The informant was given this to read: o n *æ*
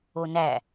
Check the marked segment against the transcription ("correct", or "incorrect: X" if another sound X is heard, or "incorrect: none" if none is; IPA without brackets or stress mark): correct